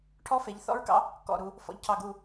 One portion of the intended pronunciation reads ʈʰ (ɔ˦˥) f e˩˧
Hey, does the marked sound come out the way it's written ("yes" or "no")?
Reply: yes